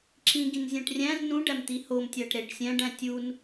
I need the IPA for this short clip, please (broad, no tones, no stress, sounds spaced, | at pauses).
ǁ ĩ ɡ ĩ n zʲ æ̃ ʈ rʲ æ̃ z n ũ ɖ æ m t̪ i h o m tʲ æ ʈ ɾ e ɖ sʲ æ̃ ɖ æ̃ tʲ u n